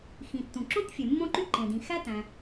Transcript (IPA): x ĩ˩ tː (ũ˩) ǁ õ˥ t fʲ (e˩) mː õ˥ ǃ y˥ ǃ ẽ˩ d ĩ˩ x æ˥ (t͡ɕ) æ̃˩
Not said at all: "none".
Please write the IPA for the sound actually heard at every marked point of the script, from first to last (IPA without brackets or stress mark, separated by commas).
ũ˩, e˩, t